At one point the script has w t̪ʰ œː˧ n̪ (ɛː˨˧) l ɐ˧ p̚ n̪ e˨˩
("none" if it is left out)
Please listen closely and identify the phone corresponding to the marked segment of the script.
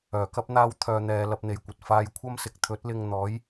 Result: ɛː˨˧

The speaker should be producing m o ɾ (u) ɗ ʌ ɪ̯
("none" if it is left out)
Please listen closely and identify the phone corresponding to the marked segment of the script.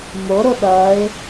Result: o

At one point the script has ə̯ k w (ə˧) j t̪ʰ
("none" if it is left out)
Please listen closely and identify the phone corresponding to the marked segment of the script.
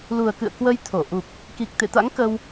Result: ə˧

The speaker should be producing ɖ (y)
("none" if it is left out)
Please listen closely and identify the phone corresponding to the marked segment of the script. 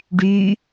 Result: y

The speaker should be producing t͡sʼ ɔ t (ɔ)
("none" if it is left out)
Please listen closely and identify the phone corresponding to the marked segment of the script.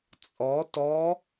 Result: ɔ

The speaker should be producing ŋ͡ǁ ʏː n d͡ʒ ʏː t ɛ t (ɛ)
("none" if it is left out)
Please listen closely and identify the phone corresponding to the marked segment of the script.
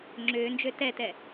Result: ɛ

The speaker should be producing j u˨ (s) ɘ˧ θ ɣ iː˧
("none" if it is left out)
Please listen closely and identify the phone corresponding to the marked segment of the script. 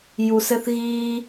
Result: s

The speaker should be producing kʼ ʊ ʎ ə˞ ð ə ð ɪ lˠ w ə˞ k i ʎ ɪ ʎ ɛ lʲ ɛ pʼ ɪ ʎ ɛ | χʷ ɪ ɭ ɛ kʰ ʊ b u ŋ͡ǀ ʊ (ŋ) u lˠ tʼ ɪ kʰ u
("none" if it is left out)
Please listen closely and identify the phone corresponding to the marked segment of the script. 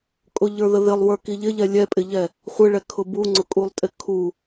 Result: kʼ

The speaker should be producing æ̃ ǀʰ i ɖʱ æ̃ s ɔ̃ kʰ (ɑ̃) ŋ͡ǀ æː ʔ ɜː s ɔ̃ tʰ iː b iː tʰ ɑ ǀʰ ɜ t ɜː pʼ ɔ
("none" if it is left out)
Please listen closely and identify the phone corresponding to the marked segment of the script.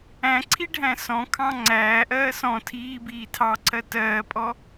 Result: ɑ̃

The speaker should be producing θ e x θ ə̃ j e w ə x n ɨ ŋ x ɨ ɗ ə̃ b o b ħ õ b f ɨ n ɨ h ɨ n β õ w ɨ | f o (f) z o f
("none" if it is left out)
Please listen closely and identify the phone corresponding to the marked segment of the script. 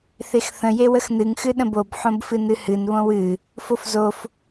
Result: f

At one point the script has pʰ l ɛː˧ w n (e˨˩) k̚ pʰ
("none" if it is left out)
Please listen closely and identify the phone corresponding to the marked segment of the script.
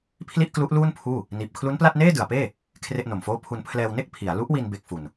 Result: e˥˩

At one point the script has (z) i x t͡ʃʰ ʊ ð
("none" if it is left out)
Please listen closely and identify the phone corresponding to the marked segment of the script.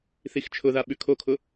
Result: θ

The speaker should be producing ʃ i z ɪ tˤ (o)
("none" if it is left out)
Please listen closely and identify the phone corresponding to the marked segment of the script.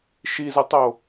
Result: o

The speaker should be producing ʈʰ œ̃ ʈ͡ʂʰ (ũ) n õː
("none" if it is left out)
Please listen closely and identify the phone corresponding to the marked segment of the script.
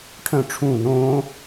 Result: ũ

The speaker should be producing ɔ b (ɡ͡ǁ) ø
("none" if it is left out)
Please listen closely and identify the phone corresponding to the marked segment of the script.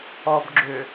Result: ɡ͡ǁ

